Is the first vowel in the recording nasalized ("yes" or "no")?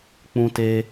yes